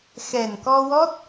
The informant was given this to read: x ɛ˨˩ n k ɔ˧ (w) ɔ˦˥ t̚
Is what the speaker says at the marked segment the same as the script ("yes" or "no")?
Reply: yes